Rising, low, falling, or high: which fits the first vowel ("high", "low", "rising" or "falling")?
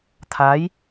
rising